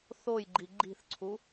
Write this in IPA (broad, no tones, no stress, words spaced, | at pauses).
θojɡ͡ǃi ɡ͡ǃi̤θǀʰu